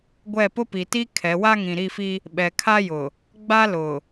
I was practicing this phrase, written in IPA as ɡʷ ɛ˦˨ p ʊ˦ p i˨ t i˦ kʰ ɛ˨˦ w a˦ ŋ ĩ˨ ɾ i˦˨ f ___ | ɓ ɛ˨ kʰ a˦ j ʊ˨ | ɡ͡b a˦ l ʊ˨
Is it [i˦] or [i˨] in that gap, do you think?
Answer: i˦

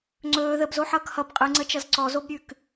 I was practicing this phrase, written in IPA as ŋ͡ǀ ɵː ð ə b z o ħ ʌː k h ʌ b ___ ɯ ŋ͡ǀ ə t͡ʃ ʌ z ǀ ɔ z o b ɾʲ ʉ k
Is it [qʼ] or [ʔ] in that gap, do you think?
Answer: qʼ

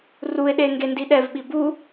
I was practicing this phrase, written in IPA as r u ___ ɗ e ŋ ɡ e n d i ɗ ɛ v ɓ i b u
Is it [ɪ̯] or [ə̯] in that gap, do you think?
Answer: ɪ̯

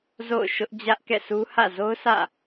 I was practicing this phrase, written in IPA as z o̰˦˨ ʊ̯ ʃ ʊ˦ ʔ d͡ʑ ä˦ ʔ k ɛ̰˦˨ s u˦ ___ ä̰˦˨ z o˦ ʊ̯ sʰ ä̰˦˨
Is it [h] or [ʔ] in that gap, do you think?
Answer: h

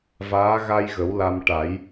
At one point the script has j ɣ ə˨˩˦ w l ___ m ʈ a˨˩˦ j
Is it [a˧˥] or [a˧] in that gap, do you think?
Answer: a˧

